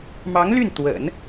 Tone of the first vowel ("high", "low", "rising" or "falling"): rising